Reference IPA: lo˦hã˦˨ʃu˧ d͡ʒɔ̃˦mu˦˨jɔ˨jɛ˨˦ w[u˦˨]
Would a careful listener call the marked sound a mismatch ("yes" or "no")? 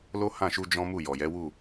no